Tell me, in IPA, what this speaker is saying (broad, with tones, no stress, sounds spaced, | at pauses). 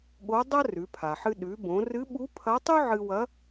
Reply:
ɠ o˧˥ dˤ ɐ˥ r ʉ˩˧ pʰ a˩ ħ ɨ˧ ɗ ʉ˩˧ b õ˩˧ r ɨ˧˥ ɓ u˧˥ pʰ ɐ˧˥ tˤ ʉ˥ ʕ ɨ˧ w ɐ˧˥